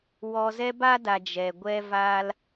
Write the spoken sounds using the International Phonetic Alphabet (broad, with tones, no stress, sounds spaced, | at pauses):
w ɔ˧ z ɛ˦ b a˦ d a˨ d͡ʒ ɛ˨ ɡʷ ɛ˦ v aː˦ l